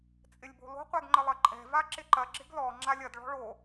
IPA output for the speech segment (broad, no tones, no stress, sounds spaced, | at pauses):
t͡sʼ ɪ lʲ b o̤ l o̤ qʷ ɛ ɡ ŋ͡ǃ ə lˠ ɐ ǃʼ ɛ̤ v a ǁ ɪ ǃ ɐ ɡ͡ǁ ɪ ɡ l ɔ ŋ͡ǁ a lʲ ɐ d ɭ ɔ̤ ɭ o